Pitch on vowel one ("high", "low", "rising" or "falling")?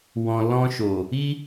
low